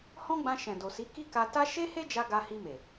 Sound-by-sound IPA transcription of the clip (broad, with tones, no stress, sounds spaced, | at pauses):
h ɔ̃˦ ɡ͡b ã˧ ʃ ɛ̃˨ d o˨ s i˨˦ k i˦ k a˧ t a˦ ʃ e˦ h e˦ d͡ʒ a˧ ɡ a˧ h i˧ m e˨